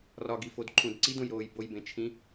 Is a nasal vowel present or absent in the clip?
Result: present